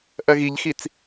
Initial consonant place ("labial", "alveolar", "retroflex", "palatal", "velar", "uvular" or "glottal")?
glottal